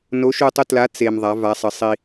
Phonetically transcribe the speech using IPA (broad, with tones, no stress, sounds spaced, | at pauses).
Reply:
n o˨˥ ʃ u˧ tˤ u˧ t l a˨˥ t͡s e˧ m ðˤ a˨˥ v a˨˥ sˤ ə˨˥ sˤ i˧